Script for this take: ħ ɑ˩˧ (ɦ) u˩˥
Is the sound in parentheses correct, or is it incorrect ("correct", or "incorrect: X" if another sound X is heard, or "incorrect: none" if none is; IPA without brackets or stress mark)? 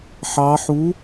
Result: incorrect: ħ